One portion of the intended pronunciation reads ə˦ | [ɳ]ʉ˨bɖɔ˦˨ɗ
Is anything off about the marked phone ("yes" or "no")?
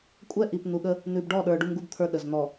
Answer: yes